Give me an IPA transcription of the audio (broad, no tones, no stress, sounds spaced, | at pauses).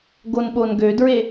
ɡ o n ɓ o n ɡ ø d ɹ e